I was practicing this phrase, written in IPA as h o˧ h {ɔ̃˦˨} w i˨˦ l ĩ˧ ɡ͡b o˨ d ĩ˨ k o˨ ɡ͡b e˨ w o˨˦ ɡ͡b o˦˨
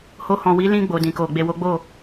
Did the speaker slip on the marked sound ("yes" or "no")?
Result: yes